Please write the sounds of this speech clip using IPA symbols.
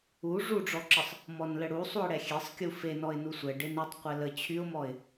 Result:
u ʐ u ɖ͡ʐ ɔ ǁ ə sˤ | m ɔ n l ə ɽ u sˤ u ɪ̯ ɽ ɛ xʲ e sˤ kʲ u f e n ɔ ɪ̯ n u sʷ ɛ ɖ e n y tˤ qʷ ɛ l ə t͡ɕʰ y ʊ̯ m ɔ ɪ̯

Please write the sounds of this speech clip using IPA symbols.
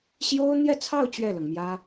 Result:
ɕ j o˥ ʊ̯ n̪ j ɛ˥˧ t͡sʰ ɑ˥˧ ʊ̯ t͡ɕ ɥ ɛ˥˩ l ɤ˩ ŋ m j ä˥

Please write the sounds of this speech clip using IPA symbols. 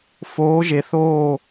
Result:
f oː˩˧ ʒ e˩ θ oː˧˩

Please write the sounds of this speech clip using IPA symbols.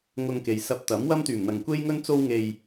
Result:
ŋ ʊ˧ ŋ k e˨ j s ɐ˧ p̚ t̪ ɐ˨˥ m w ɐ˥ m t̪ yː˨˩ m n̪ ɐ˨ ŋ kʷ e˥ j ŋ ɵ˥ n t͡s o˥ w ŋ e˧ j

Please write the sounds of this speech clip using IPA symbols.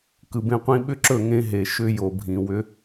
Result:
k ɯ˨ b ẽ˦ qʷ ĩ˦ ɓ ʏ˦ ǁ ɵ˦˨ ŋ ẽ˦ ɦ e˨ ʃ ʏ˦ j o˨ bʱ ĩ˨ w ʏ˦

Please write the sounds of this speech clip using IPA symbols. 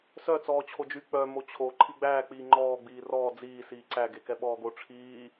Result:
s œ t͡s ɔː t͡ɕʰ o d͡ʒ y k͡p œ m o t͡ɕʰ o ǃʰ i ɡ͡b æː k͡p iː ŋ͡ǃ ɔː ɡ͡b iː r ɔː d͡z iː s iː ǀ æ ɡ e k ɛ ɓ ɔː ɡ o ʈ͡ʂʰ iː

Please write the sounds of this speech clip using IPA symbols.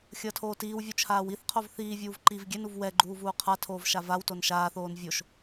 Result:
xʲ ʌː tʰ oː t iː w vʲ u t͡ʃʰ aː w i θ qʰ o v θ iː vʲ uː v ǃ i v ɡʲ ɛ n u v w ɛ ɡ͡ǃ uː v uː qʰ a tʰ oː v ʃ a v a w t o n ʃ aː θ oː n vʲ o ʃ

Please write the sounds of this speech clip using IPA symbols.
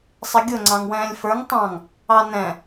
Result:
sˤ ɪ ɡʲ ʊ ŋ͡ǀ ɑ̃ ŋ w ɛ̃ː lʲ f ə˞ ŋ tˤ ɑ̃ ŋ | ɑ n ɛ̃

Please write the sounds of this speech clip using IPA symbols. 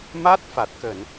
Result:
m a˦˥ t̚ f a˨˩ t̚ k ə˧˩˨ n

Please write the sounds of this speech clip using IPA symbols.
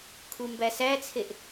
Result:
kʰ u m b æ s æ t͡sʰ e ʔ

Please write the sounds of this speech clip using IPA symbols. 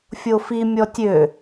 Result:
fʲ o f i mʲ ɔ tʲ ø

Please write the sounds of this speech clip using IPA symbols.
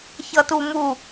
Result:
ç ʌ t u m u

